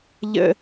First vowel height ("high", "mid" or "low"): mid